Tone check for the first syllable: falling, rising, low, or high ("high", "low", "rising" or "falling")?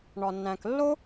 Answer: low